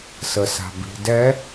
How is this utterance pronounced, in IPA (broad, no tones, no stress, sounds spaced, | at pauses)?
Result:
s ə s a̤ b i̤ d ɛ